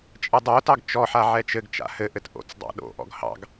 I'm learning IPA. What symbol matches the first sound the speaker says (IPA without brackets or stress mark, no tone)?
t͡ʃʼ